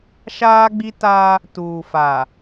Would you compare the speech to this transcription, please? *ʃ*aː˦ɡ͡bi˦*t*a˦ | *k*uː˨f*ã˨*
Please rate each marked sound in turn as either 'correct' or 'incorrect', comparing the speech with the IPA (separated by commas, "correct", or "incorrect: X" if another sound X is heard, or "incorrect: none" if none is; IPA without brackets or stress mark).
correct, correct, incorrect: t, incorrect: a˨